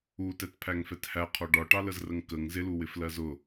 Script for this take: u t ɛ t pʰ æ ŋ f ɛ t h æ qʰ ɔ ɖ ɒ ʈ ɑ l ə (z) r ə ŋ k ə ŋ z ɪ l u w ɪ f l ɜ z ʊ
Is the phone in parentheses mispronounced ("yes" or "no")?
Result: no